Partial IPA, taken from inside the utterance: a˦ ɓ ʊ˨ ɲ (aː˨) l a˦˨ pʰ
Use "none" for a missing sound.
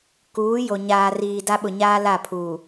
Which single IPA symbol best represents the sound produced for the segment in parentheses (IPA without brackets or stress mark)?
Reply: aː˦